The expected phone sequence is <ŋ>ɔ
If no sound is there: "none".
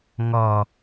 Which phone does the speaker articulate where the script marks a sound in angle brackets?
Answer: ŋ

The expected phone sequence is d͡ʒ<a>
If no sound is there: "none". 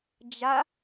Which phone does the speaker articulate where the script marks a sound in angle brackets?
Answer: a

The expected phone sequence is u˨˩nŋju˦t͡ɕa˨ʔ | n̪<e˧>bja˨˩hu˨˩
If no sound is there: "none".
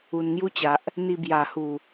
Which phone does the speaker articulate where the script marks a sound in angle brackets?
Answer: i˧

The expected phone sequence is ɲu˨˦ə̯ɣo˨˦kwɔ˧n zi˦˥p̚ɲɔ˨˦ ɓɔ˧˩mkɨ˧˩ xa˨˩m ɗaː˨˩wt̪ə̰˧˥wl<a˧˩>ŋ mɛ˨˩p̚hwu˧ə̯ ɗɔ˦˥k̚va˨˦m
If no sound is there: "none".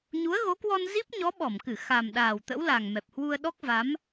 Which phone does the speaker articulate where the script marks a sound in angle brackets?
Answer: a˨˩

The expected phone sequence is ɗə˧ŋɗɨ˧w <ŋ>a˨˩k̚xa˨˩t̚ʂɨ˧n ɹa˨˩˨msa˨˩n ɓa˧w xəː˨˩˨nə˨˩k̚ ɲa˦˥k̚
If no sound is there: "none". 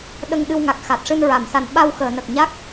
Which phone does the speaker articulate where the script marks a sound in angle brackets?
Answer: ŋ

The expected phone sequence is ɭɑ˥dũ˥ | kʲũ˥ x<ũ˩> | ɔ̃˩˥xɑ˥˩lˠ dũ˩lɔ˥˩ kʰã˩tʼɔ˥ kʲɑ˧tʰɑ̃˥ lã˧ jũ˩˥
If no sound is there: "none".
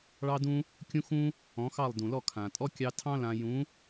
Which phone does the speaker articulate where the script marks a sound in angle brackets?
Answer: ũ˥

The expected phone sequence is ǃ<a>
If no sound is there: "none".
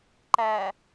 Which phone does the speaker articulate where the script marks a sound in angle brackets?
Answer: æ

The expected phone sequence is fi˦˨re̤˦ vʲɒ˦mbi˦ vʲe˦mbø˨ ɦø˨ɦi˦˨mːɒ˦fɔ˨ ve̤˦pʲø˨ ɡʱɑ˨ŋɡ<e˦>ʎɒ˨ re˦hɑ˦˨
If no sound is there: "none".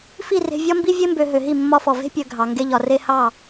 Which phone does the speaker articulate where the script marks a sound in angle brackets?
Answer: e˦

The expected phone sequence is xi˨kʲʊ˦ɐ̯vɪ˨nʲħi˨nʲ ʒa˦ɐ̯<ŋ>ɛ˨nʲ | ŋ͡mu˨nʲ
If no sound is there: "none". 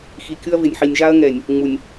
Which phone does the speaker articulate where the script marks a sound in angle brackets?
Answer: ŋ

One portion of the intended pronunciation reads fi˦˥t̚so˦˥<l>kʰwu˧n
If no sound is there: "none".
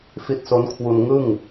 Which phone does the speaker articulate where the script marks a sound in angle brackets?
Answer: n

